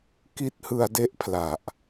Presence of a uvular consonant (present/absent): absent